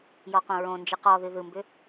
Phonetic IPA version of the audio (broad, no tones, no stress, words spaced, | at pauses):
jɔqõɹõnd͡ʒɨ qɔðɨ ðɯmbʏ